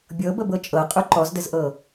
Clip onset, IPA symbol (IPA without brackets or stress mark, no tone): bʲ